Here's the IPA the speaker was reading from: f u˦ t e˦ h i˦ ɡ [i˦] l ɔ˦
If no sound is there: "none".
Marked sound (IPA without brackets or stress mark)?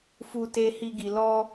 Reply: i˧